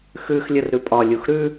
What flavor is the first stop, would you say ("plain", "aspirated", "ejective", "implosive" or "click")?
ejective